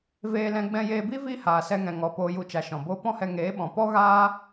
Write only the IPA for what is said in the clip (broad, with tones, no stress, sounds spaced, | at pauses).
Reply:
v eː˧ l ɛ̃˧ ɡ͡b ɛ̃˧ j eː˧ b i˦ v iː˦ h aː˨ s ɛ˧ ŋ ɛ̃˨ ŋ ɔ˨ p oː˧ j u˧ t͡ʃ a˨ ʃ ɔ̃˨ b oː˦ p ɔ̃˦ h ɛ˧ ŋ eː˨˦ ɓ ɔ̃˨ p ɔ˦ ɣ aː˦